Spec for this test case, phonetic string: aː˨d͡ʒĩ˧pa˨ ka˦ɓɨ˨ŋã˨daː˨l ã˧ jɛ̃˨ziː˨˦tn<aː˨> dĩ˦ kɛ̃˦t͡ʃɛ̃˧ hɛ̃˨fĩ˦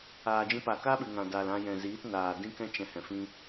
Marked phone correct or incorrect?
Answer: correct